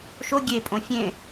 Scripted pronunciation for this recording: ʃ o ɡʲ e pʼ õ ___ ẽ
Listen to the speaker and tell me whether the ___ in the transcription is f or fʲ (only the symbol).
fʲ